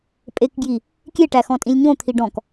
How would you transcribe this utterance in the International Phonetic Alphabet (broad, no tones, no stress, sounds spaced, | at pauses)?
pʼ e k ɡ j i | kʲ e ʈ æ x ɔ̃ tʼ ĩ lʲ ɲ õ t̪ʰ i ɖ ɔ̃ k